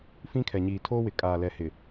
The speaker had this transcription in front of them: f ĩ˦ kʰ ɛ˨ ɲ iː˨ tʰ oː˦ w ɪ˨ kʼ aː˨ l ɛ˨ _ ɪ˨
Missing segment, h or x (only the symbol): h